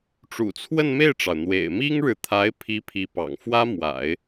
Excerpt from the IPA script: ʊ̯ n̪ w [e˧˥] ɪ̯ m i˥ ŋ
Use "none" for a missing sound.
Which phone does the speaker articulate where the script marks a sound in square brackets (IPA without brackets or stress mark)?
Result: ḛ˨˩